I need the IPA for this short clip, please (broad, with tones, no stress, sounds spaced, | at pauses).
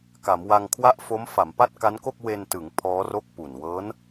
k a˩˦ m w a˧ ŋ kʰ w a˥˩ ʔ f o˦˥ m f a˩˦ m p a˥˩ t̚ k a˦˥ n k o˥˩ k̚ w e˧ n t ɯ˩˦ ŋ pʰ ɔː˦˥ r o˥˩ k̚ p u˨˩ n w ɤː˦˥ n